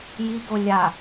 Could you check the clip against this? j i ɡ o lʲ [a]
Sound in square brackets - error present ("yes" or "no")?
no